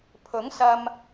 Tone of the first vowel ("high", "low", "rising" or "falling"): rising